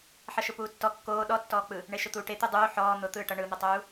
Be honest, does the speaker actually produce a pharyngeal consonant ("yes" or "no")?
yes